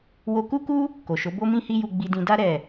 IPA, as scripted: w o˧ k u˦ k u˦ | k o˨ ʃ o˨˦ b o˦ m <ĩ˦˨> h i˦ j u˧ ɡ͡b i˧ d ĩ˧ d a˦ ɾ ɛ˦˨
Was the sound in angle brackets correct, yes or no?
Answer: no